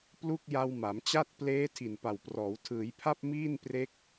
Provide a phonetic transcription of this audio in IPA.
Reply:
p l u˥˩ k̚ j a˧ w m a˩˦ m t͡ɕ a˥˩ t̚ p l eː˦˥ tʰ i˨˩ n p a˨˩ w p r ɔː˩˦ w tʰ ɯː˩˦ j pʰ a˥˩ p̚ m iː˥˩ n p r e˦˥ k̚

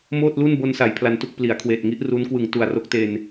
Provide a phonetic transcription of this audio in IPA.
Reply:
m oː˥˩ t̚ l u˥˩ n b o˧ n s a˩˦ j pʰ l a˧ n t u˥˩ k̚ p l i˩˦ a̯ kʰ w eː˨˩ t̚ ŋ i˦˥ ʔ r u˦˥ n k w ɯ˨˩ ŋ t u˨˩ a̯ r o˦˥ k̚ t e˧ n

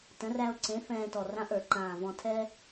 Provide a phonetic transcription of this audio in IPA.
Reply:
t ə̃˩˥ r æ˧ o̯ ǀ ẽ˩˥ f ɛ̃ː˧ t ɔ˨˩ r ã˧ ʔ ə˞˧˩˧ ǃ ãː˨˩ v ɔ̃˧ tʰ ɛ˥

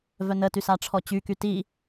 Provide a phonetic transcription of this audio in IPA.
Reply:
v œ n ə t y s a ʈ͡ʂʰ ɔ t͡ɕ y k y t i

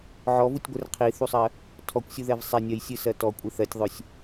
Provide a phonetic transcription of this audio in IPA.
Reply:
ʕ ɔ v u tʲ ɡʷ ɘ r qʰ i θ u sˤ ɜ | tʰ ɔ kʷ sʲ u ð ɛ v sˤ ɛ nʲ ɜ j sʲ ɨ s ɜ t ɔ kʷʼ ɨ θ ɜ tʲ ðˤ ø sʲ

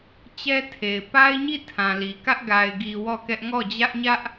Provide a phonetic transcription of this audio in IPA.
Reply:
t͡ɕ ɛ˦ tʰ e˨ ɪ̯ p a˦ ɪ̯ ɲ i˦˨ tʰ ã˨ l i˨ k ä˦ ʔ ɡ a˨ ɪ̯ ɡ i˨ w ɔ˦˨ k ɛ˦ ʔ ŋ ɔ˦˨ d͡ʑ ä˦ ʔ ɲ ä˦ ʔ

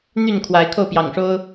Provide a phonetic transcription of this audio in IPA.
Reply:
n̪ y˥˨ n kʰ w a˨˦ ɪ̯ kʰ o˥˨ ʊ̯ p j ɑ̰˨˩ ŋ ʂ o˦ ʊ̯

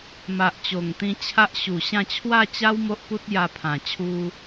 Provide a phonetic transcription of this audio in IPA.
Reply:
m a˨ ʔ t͡ɕ o˨˩ ŋ t̪ ĩ˧ t͡ɕʰ a˦ ʔ ɕ u˨˩ ɕ ã˥˧ t͡ɕʰ w a˥˧ t͡ɕ a˦ w m o˦ ʔ p u˦ t̚ j a˧ pʰ ã˨˩ t͡ɕʰ u˧

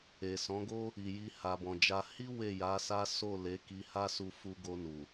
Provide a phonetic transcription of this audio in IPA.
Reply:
e˨ s ɔ̃˨˦ ɡ o˦ | i˨ j i˧ h a˨ b ɔ̃˨ d͡ʒ a˧ h i˦ w e˦˨ j a˨˦ s a˦ s o˦˨ l e˨˦ k i˧ h a˦ s u˧ f u˧ ɡ o˧ n u˨

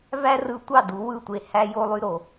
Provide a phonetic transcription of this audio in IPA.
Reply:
v æ˦ r ɯ˧ tʷ ɑ˦˨ d u˨˦ w ɯ˦˨ tʷ e˧ h æ˧ j o˧ lˠ y˧ ɾ o˨

